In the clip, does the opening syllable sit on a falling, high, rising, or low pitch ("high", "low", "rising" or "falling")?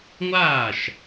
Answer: falling